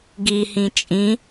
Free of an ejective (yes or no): no